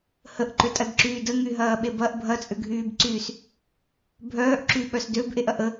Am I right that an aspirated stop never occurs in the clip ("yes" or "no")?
yes